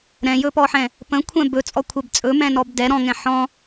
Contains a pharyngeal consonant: yes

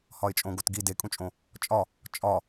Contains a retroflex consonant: no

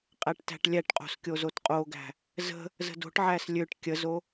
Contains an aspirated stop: no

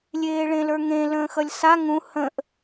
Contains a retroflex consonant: yes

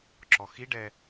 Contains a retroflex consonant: yes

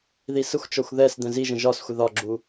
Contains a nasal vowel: yes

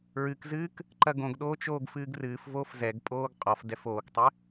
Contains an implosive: yes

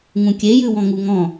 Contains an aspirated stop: no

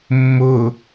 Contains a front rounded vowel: no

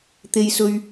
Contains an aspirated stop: no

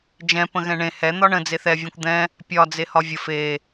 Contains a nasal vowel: yes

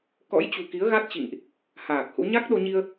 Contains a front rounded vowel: no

